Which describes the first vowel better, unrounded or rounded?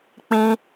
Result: unrounded